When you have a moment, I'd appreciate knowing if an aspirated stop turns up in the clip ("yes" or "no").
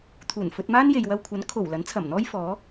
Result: yes